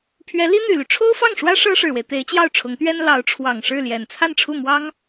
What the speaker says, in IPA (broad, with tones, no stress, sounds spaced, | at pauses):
pʰ ɥ ɛ˧˥ l i˥ n̪ y˨˩ l y˦ ʈ͡ʂʰ o˥ ʊ̯ f ɑ˥˩ ŋ ʂ w ä˥ ʂ ɤ˥ ʂ ɻ̩˨˩ w e˦ ɪ̯ t̪ e˧˥ ɪ̯ t͡ɕ j ɑ˥˩ ʊ̯ ʈ͡ʂʰ ʊ˧˥ ŋ t̪ ɥ ɛ˥ n l ɑ˧˥ ʊ̯ ʈ͡ʂʰ w ɑ˨˩ ŋ ʂ ɻ̩˥˩ l j ɛ˨˩ n t͡sʰ a˥˧ n ʈ͡ʂʰ u˥˩ m w ɑ˥ ŋ